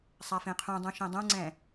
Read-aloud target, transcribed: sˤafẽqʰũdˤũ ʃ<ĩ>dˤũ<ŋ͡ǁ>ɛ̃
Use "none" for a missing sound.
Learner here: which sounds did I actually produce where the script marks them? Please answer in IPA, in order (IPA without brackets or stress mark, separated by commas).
ẽ, ŋ͡ǀ